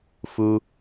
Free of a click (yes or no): yes